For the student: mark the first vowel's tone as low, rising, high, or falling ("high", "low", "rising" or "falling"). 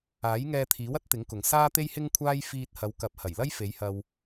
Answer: rising